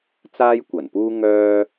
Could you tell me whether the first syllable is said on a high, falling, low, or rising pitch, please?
high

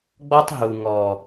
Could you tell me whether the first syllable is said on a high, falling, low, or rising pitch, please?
high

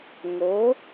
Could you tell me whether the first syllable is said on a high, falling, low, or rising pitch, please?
rising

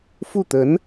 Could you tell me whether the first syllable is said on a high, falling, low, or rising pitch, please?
falling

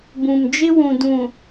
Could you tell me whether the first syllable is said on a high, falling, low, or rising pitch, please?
low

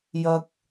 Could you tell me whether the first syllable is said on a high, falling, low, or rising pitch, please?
low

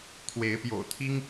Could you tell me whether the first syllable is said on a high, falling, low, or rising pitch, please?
rising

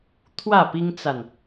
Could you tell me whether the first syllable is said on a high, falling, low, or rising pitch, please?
falling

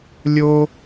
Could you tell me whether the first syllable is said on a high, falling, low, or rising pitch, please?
high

